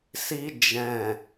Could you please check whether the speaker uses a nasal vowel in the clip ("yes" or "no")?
yes